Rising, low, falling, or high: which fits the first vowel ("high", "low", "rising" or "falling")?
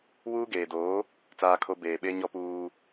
high